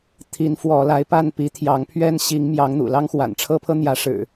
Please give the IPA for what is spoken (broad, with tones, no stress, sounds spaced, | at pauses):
t̪ʰ i˨˦ n f w ɔ˨˦ l a˨˦ ɪ̯ p a˥˨ n p i˨˦ t̪ʰ j ɑ˨˦ ŋ pʰ ɥ ɛ˦ n ɕ i˨˦ ŋ m j ɑ˨˦ ŋ n̪ ṵ˨˩ l ɑ˦ ŋ x w a̰˨˩ n ʈ͡ʂʰ ɤ˦ pʰ ɤ˦ n̪ j ä˨˦ ʂ ɻ̩˨˩